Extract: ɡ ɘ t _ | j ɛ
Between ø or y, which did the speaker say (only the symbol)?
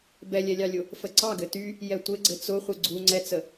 y